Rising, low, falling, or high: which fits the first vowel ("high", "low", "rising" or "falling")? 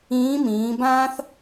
rising